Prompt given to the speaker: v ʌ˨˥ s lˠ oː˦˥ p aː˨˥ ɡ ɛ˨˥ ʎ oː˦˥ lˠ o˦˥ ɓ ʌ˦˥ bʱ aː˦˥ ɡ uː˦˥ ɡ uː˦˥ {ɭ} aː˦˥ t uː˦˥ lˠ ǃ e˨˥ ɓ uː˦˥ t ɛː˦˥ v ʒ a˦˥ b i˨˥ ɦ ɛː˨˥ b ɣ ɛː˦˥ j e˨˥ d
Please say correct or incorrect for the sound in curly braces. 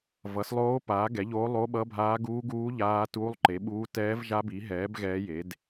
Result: incorrect